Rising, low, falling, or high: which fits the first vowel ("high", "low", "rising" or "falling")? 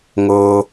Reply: high